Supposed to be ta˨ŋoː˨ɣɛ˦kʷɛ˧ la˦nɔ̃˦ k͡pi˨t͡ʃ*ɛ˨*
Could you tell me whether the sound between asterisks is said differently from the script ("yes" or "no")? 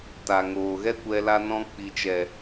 no